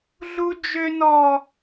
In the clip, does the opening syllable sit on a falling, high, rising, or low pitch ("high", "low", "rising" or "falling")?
high